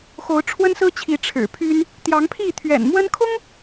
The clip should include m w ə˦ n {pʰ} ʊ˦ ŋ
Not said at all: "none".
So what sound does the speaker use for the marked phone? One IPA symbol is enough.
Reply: kʰ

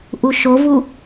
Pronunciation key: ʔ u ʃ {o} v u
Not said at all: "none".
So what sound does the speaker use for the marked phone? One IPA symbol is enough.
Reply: o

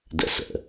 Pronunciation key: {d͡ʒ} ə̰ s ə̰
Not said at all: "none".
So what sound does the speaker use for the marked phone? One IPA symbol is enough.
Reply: d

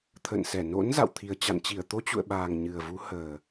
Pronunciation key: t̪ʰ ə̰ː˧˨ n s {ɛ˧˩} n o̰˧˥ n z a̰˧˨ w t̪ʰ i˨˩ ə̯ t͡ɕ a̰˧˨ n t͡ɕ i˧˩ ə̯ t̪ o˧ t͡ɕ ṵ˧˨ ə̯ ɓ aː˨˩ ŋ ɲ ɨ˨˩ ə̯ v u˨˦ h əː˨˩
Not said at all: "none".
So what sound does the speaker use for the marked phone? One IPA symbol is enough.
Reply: ɛ˧˩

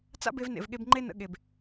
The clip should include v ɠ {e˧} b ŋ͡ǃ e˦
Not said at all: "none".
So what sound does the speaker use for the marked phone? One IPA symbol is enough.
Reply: e˧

